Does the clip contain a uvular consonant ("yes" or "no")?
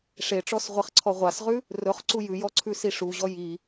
yes